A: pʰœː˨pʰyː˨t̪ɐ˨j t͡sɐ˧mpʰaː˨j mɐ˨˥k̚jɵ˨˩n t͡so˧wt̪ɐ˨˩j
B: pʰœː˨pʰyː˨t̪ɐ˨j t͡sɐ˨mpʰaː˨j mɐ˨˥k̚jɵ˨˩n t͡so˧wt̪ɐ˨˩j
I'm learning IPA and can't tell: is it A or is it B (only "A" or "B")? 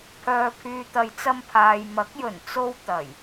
A